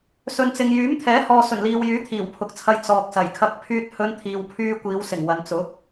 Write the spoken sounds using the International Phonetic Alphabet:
s ɵ˨ n t͡s ɪ˨ ŋ j yː˨˥ m t̪ʰ ɛː˨˥ h ɔː˨ s ɵ˨˩ n l iː˨ w j yː˨˥ t̪ʰ iː˨˩ w pʰ ʊ˨ k̚ t͡sʰ ɐ˧ j t͡s ɔː˨ k̚ s ɐ˨˩ j kʰ ɐ˧ k̚ pʰ yː˥ t̚ h ɵ˥ n t̪ʰ iː˧ w pʰ yː˥ kʷ iː˨˧ w s ɪ˨˩ ŋ w ɐ˨ n t͡s ʊ˨˥ k̚

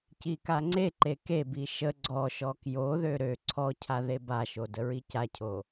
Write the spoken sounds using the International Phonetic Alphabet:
c i k a ŋ͡ǀ e ǃ e k e b i ʃ ə ɡ͡ǀ ɔ ʃ ɔ k j o ð ø ɾ ø ǀʰ ɔ cʰ a ð e b a ʃ o d ə ɹ i c a cʰ o

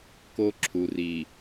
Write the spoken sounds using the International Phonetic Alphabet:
k o˦ ǁʰ u˨ r i˨

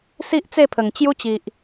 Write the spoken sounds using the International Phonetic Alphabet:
s i˦ ʔ t͡s e˥˧ pʰ ə˨˩ ŋ t͡ɕ j u˦ t͡ɕ i˨ ʔ

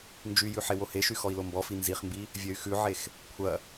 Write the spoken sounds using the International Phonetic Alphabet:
n d͡ʒ y j ʉ ħ e w o h e ʃ y x ɔ i̯ l o m b ɔ f i n z i χ m b i | vʲ ɐ y̯ x ʉ ʕ e x | kʷʰ ɐ

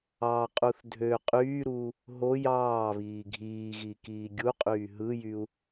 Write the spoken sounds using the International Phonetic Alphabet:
ɑ qʼ u θ dʱ ø qʼ yː ɾ uː | ɦ o j ɑː β iː ɡʱ iː ɣ i k iː ɡʲ u qʼ yː ɦ ɯ j y u̯

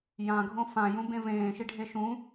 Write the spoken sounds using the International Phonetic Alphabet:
j ã ɡʱ õ f ã j ũ b ẽ v ẽː ʃ i ɖʱ e ʃ ũ

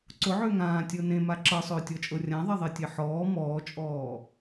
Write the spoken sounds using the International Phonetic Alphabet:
ǀ ʊ ʕ ʏː ŋ ãː tʲ ɤ n ẽ m a ǁ ɤ sˤ ʏː tʲ ɔ t͡ʃʼ ɤ rʲ ã ðˤ e ðˤ e tʲ e ħ ɔː m ɔː t͡ʃʼ ɔː

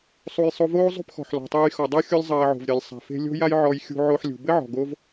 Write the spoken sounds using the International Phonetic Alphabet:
sˤ u˧ j sˤ o˧ v oː˥ zˤ ṳ˥ p x ɔ̤˩ ħ l ɔ̤˩ tˤ ɘː˧ j x ɔ˩ dˤ ɐ˥ xʲ o˥ lʲ zˤ ɐː˧ ʕ o̤˩ v ɾʲ ɐ˩ lʲ sˤ a̤˩ f e̤˧ lʲ o̤˥ j a˥ j ʕ ɔ˧ j xʲ ṳ˧ ʕ o˧ ħ lʲ ṳ˩ b ɘ˥ ʕ ɔ̤˩ ɡ o˥ v

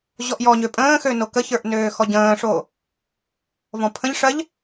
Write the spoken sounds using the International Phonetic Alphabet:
ʑ ɔ ʔ j ɔ ɲ ø pʼ ə̃ː x ø n o k ə ç ə˞ ʔ n øː x ɔ ɟ ə̃ː ʂ oː | v ɔ̃ pʰ ə̃ ʎ ʂ ɜ ʎ

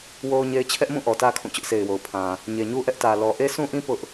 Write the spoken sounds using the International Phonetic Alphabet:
w o˦ ʊ̯ ɲ e˦ ɪ̯ t͡ɕʰ ɛ˦ ʔ m ũ˦˨ ʔ ɔ˨ t ä˦ kʰ ũ˦˨ t͡ɕ ʊ˦ ʔ sʰ e˨ ɪ̯ w o˨ ʊ̯ pʰ ã˨ | ɲ e˨ ɲ u˦ ʔ ɛ˦ ʔ t ä˨ l ɔ˨ ʔ e˦ s ũ˦ ʔ ĩ˦ p ʊ˦ ʔ

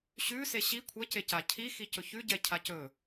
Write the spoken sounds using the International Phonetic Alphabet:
ɕ ʉ s e ɕ i kʷʰ ɛ c e c a cʰ i x i c ɵ ç ʉ ɟ ɛ cʰ a c ɵ

